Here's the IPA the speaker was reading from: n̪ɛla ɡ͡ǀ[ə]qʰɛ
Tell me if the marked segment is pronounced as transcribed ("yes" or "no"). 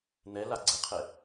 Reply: yes